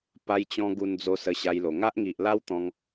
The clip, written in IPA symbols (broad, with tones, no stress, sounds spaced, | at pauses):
p a˧ j t͡ɕ ɔ̃˧ ɡ u˧ n d͡z o˧ s ə˧ ɕ a˧ j l o˨˩ ŋ a˦ ʔ ŋ i˨ ʔ l a˦ w t̪ ɔ̃˧ ŋ